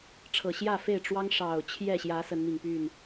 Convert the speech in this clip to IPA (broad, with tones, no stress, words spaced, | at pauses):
ʈ͡ʂʰɤ˨˩ɕjä˥˨fe˥˨ɪ̯ ʈ͡ʂwɑ˦ŋʂɑ˨˩ʊ̯ t͡ɕʰjɛ˥˨ɕjä˨˦ sə˨˦nmi˨˩ŋ py˥˨n